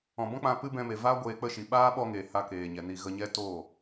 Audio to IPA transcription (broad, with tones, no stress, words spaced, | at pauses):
ɔ̃˨bɔ̃˦k͡pã˧ pɨ˦bɛ̃˧me˨ vaː˦ ɡʷeː˧k͡pə˦˨ʃi˨ ɓaː˦ ɓɔ˧ŋeː˨ ha˧ keː˨ɲɛ˨ni˧ ɣə˧ɲɛ˦ toː˦˨